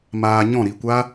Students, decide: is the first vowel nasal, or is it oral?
oral